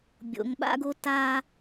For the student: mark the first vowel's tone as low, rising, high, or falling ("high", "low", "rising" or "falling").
low